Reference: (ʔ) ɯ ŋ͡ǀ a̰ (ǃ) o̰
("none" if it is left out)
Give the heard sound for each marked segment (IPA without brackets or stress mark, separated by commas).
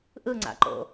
ʔ, ǃ